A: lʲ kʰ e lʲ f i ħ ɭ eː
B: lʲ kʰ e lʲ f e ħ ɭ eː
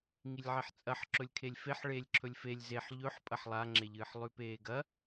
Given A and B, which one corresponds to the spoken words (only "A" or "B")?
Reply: B